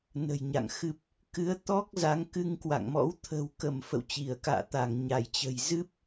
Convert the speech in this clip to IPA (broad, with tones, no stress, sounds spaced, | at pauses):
n ə̤˨˩ j ɲ a̰˧˨ ŋ x ɨ˨˩ p̚ | k ɨ˨˦ ə̯ t̪ ɔ˦˥ k̚ z a˨˦ ŋ k ɨ˧ ŋ k w a̰˧˨ ŋ m ɔ̰˧˥ w t̪ʰ ə̤˨˩ w k ə˧˩ m f ə̰˧˨ w t͡ɕ i˧˩ ə̯ k a̰ː˧˨ t̪ a˧˩ ŋ ɲ a˧˩ j t͡ɕ ə̤˨˩ j z ɨ˦˥ p̚